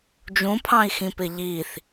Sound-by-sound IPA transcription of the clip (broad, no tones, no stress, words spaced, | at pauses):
d͡ʒũpʰɑ̃i̯xĩpɪ ʎiθ